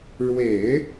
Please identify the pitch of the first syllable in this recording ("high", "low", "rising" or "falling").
low